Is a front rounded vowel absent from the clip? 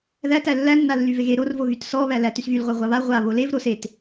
no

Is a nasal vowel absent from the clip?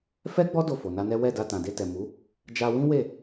no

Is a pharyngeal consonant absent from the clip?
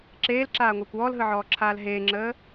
no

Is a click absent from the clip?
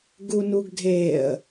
yes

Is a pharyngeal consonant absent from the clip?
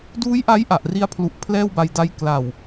yes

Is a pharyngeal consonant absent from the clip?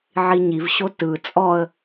no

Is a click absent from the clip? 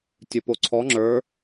no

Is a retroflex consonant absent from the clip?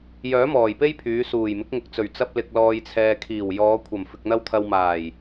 yes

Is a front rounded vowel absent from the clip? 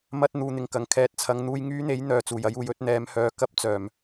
no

